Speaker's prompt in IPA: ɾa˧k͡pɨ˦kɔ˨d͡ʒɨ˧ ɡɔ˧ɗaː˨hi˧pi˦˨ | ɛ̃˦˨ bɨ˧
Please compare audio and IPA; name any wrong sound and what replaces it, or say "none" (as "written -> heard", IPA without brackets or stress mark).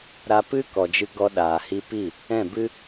k͡p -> p